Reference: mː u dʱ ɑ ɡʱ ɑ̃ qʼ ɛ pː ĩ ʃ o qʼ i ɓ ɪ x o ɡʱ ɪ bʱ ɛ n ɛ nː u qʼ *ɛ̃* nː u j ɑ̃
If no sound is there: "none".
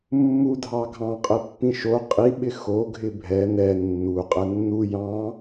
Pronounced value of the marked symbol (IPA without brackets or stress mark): ɛ